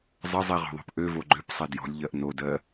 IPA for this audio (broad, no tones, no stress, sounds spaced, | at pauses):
zˤ ə zˤ i ʁ ɔ̤ ðˤ o̤ p ʔ ø v o ɡ͡ǃ ø p sˤ e d j ɔ̤ lʲ ʎ ɜ ʔ n o d ɜ